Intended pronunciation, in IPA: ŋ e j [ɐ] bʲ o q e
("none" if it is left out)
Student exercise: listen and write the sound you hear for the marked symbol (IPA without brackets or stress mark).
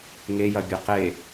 ɐ